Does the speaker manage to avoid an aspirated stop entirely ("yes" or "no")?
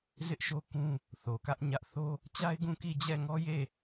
yes